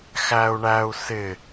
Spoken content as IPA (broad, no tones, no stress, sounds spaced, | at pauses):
x æ u̯ ɳ æ u̯ s ɪ